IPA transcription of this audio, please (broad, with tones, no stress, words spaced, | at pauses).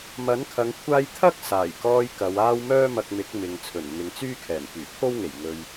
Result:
mɐ˨˥nkʰɐ˨˧ŋ kʷʰaː˥j t̪ʰɐ˥k̚saː˨˩jkɔː˧j kɐ˨˧waː˥w mœː˥mɐ˧k̚mɪ˨˥k̚ mɪ˨ŋ t͡sʰɵ˨˩nn̪ɪ˨ŋt͡syː˥kʰɛː˨˩n pyː˨˩pʰo˥wŋe˨˩j ŋɵ˨ɥ